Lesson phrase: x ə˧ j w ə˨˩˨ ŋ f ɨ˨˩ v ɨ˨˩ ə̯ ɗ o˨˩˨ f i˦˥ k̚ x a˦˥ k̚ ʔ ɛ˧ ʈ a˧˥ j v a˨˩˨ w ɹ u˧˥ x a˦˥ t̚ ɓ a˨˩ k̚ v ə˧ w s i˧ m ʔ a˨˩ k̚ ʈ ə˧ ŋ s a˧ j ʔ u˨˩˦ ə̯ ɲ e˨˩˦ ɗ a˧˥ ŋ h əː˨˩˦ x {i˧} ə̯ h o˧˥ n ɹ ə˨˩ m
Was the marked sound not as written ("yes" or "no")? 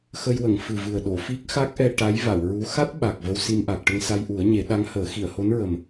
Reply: yes